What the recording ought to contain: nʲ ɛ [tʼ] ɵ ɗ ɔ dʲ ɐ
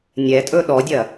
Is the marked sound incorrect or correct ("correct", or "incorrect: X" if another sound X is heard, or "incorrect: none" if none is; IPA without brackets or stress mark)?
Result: correct